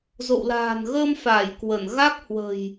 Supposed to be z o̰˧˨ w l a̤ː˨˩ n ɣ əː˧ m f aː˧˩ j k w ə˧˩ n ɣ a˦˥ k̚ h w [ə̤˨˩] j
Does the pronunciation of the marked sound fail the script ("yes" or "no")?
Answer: no